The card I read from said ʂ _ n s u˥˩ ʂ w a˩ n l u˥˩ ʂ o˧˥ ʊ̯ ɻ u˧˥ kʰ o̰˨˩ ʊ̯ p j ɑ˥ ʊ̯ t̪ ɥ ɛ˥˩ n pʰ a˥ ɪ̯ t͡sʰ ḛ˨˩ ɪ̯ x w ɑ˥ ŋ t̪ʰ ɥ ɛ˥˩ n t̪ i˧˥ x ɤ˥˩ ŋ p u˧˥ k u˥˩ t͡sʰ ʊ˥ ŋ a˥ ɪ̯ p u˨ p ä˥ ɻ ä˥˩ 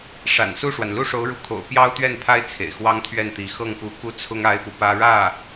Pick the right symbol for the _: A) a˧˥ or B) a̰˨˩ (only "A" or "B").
B